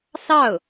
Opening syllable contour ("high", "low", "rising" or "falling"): falling